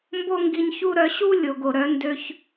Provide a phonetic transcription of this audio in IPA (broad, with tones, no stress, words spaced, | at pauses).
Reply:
mbo˦ŋɡi˧ɲçu˦ ɾœ˧ ɕu˦ lʲo˨ɡo˨ɾœ˨˦ ndø˧ç